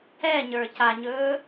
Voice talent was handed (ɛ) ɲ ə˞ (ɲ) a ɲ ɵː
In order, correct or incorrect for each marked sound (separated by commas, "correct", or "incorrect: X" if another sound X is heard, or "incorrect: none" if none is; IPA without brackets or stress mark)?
correct, incorrect: c